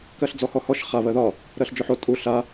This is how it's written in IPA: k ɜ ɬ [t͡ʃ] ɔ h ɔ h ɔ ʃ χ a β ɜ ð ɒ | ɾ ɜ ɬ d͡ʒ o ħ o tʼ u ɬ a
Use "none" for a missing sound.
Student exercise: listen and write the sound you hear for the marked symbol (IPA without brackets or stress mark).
d͡z